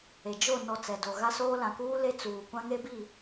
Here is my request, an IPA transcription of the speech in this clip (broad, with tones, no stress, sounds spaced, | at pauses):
e˨ d͡ʒ o˦˨ n ɔ˨ t͡s ɛ˨ d o˨ ɣ a˦ s oː˦ l ã˨ k uː˦ l e˦ t͡s uː˨ kʷ ã˦ ŋ e˦ b i˦˨